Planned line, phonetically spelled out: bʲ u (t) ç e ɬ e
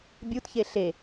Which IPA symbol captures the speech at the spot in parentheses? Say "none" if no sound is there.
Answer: t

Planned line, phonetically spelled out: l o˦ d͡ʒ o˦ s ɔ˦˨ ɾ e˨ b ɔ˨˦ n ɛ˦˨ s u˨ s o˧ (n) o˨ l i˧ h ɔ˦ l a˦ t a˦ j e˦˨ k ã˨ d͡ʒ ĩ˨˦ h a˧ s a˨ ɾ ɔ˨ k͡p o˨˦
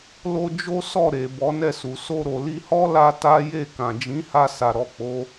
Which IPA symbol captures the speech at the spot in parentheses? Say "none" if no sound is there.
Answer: ɾ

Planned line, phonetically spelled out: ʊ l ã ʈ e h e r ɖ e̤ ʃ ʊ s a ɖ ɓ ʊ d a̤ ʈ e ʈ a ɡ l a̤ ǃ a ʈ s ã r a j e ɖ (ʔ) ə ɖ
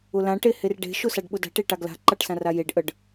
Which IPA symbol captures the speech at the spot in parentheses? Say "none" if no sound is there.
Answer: ʔ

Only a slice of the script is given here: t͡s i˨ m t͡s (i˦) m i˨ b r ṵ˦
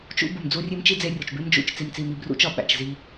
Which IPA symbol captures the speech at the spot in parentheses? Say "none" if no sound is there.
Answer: i˨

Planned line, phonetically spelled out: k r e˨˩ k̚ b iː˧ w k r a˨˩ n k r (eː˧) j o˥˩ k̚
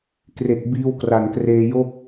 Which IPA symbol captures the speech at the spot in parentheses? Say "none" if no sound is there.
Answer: eː˧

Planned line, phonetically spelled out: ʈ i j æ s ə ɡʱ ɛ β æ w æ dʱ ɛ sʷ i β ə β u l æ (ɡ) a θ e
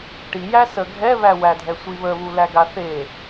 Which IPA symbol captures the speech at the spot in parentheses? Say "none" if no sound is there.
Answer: ɡ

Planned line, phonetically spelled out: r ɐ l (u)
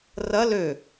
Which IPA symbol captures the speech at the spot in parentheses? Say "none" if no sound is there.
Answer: ø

